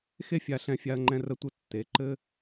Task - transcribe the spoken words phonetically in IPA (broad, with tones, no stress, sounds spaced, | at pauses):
x e˦ fʲ a˧ ɬ ɛ̃˧ fʲ a˧ ɐ̯ ŋ͡ǃ ɛ̃˧ r ə˧ tʷ ɘ˧ tː e˨˦ ǃ ɘ˦